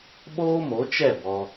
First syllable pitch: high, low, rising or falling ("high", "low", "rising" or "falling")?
high